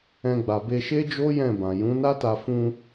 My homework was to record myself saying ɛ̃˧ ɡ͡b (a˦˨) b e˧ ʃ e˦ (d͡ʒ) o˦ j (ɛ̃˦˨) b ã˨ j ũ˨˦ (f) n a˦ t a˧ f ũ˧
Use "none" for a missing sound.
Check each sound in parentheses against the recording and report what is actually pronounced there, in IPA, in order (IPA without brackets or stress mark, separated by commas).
a˨, d͡ʒ, ɛ̃˦˨, none